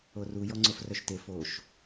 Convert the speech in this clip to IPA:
o r u j ɔ ŋ͡ǀ o f r œ ʃ t e f o ʃ

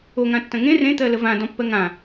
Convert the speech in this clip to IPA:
o ŋ ã tː ɐ̃ ŋ ẽ r ẽ t̪ ɜ l ə v ã d ɔ̃ pː ɜ ŋ ã

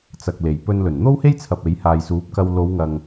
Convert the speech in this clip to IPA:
t͡s ɐ˨ k̚ l e˨˩ j p ɵ˧ n l ɵ˨˩ n n̪ o˥ w h e˥ j t͡sʰ ɐ˨ p̚ e˨˥ j h aː˨ j s uː˨˥ p̚ k ɐ˧ w l o˨˧ w ŋ ɐ˨ ŋ

